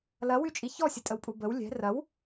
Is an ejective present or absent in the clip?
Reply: present